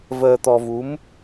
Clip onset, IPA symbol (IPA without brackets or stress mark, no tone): v